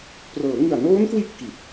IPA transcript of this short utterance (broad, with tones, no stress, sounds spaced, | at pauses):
p r ɤː˩˦ ŋ ɯ˨˩ a̯ n oː˦˥ n k w i˦˥ ʔ k i˨˩ t̚